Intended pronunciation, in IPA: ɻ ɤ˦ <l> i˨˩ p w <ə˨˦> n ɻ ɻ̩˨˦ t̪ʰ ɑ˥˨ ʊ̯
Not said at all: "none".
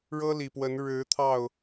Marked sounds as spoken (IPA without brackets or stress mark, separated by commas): l, ə˨˦